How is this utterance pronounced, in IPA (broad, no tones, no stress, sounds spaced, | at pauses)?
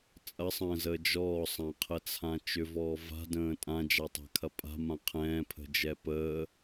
t͡sʼ ɐ sˤ ə̃ː z əː d͡ʒ ɔː sˤ ã qʰ ə t͡sʰ ã t͡ʃ ʏ v ɔː v a̤ d ə̃ː tʼ ã d͡ʒ a tˤ a̤ kʰ ɐ pʼ a̤ m ã qʰ ɛ̃ː pʰ ə̤ d͡ʒ ɛ p əː